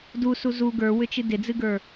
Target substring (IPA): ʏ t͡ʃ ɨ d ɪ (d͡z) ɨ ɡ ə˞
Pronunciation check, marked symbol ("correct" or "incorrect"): correct